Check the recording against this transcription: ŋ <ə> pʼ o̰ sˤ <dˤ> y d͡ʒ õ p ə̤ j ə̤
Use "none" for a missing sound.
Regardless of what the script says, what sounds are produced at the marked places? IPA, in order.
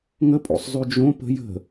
ə, zˤ

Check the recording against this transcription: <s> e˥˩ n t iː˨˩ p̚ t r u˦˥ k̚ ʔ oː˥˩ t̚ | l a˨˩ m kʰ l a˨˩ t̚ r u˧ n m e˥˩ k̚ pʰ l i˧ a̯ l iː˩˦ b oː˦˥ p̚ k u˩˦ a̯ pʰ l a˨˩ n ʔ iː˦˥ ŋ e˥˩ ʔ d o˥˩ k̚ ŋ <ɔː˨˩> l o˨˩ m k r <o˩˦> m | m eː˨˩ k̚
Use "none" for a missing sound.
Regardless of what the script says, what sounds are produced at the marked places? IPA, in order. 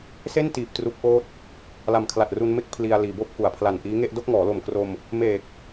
s, ɔː˩˦, o˧

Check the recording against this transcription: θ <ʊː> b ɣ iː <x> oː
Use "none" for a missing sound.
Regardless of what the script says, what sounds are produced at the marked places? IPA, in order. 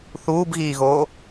uː, ɣ

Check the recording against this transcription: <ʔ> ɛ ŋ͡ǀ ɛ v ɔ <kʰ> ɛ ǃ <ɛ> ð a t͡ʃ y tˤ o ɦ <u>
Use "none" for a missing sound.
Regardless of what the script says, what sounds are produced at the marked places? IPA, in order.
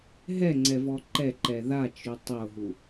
ɦ, ǃ, ɛ, u

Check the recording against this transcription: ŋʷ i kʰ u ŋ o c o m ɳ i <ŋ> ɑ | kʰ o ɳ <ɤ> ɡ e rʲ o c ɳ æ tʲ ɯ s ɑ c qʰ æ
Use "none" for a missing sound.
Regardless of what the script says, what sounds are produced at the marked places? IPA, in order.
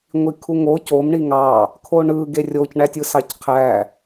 ŋ, ɯ

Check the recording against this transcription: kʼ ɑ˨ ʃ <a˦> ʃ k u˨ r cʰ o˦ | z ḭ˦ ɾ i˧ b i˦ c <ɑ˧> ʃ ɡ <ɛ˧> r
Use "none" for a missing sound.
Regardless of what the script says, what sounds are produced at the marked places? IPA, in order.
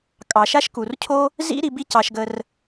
a˦, ɑ˧, ə˧

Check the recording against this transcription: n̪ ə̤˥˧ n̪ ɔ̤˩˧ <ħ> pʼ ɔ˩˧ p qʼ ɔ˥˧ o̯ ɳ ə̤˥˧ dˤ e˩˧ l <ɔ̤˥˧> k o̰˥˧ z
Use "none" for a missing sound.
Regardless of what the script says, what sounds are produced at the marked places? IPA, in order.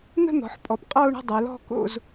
ħ, ɔ̤˥˧

